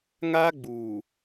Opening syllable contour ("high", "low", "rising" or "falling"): high